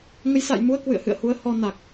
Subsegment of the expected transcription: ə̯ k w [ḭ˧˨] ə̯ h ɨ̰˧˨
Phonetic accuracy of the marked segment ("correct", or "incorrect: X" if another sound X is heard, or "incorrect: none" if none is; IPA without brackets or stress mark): incorrect: ɨ̰˧˨